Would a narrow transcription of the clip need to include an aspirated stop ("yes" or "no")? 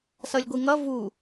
no